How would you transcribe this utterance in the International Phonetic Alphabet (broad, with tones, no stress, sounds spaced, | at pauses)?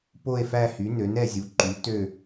p o˥˧ e̯ f æ˥˧ h y˨˥ n ø˨˥ n ɛ˥˧ zʲ u˨˥ ǃ y˨˥ t ø˥˧